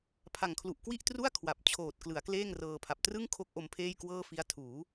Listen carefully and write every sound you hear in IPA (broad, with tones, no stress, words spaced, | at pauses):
pʰa˨˩ŋ kʰlu˨˩ʔkwi˥˩ʔtru˥˩a̯ kʰwa˨˩p̚ t͡ɕʰoː˨˩t̚ klɯ˩˦a̯kleː˥˩ŋrɤː˧pʰa˨˩p̚ trɯ˥˩ŋkʰo˦˥k̚ ʔo˧mpʰeː˥˩jkwɤː˥˩ fi˦˥a̯tʰuː˩˦